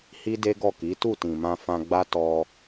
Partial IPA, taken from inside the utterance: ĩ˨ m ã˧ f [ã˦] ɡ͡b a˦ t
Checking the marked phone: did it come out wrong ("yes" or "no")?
yes